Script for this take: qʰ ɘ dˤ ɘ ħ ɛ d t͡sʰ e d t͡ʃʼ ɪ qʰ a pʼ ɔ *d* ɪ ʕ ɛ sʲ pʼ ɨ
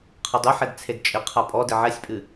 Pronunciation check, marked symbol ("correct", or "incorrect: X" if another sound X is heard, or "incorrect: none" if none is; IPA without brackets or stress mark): correct